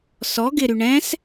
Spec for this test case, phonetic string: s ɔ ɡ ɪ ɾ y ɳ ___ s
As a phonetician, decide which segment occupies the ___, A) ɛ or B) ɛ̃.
B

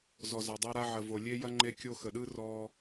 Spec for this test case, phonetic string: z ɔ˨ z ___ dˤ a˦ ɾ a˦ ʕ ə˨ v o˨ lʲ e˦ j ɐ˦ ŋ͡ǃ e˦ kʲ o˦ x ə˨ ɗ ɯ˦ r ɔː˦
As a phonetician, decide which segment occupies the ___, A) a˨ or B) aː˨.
A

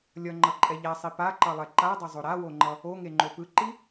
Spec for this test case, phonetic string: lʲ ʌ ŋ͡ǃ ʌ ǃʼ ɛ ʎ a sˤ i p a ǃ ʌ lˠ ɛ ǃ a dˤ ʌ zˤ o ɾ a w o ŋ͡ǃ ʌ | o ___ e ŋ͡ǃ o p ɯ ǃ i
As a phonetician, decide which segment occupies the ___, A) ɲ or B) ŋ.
B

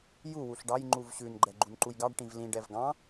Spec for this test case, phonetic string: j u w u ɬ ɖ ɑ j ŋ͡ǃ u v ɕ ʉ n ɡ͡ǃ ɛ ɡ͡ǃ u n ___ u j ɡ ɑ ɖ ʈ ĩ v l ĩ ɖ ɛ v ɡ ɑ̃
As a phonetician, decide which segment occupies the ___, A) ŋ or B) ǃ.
B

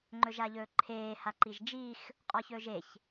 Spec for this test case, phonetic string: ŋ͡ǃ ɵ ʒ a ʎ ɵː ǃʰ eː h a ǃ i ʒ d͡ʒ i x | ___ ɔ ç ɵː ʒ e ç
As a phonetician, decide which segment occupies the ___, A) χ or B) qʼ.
B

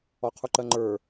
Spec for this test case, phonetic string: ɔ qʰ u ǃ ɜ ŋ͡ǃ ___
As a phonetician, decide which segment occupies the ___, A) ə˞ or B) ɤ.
A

